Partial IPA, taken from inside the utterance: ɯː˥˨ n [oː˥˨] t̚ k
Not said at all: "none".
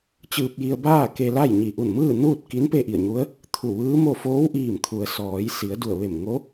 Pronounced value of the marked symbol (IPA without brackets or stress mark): uː˥˨